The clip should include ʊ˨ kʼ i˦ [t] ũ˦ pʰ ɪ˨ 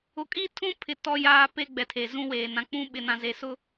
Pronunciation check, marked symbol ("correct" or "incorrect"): incorrect